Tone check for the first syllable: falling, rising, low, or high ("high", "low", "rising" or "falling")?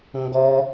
high